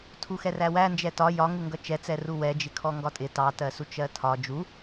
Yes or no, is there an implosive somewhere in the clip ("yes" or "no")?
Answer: no